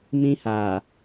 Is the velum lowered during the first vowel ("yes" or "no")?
yes